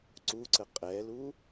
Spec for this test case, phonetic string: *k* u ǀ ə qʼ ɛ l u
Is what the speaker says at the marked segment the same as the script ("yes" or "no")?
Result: no